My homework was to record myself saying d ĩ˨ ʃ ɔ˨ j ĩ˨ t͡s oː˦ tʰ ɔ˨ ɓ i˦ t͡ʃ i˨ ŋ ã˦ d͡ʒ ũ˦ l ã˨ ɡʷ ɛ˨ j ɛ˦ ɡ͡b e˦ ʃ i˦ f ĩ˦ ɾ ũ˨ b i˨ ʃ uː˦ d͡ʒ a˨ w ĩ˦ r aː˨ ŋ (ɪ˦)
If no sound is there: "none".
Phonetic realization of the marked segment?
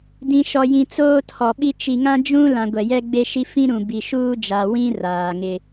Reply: ɪ˦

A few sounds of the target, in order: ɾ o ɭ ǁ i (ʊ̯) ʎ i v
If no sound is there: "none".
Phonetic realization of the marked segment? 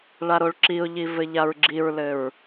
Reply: ʊ̯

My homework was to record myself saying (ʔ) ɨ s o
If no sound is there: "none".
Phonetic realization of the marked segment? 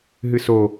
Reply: ɦ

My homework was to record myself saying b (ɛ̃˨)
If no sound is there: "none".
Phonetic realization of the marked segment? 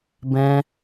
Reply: ɛ̃˦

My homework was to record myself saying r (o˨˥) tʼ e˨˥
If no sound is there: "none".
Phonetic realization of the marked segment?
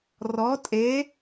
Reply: ɔ˨˥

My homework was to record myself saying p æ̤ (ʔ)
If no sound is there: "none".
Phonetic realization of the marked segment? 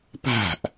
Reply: ʔ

